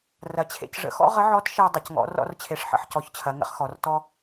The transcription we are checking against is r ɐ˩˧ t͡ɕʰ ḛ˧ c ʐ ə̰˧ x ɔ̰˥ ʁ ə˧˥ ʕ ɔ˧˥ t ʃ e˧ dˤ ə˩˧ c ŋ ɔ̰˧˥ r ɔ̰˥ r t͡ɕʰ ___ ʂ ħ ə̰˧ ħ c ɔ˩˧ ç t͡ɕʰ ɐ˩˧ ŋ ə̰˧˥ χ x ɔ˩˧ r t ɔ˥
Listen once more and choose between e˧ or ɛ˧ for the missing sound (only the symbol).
e˧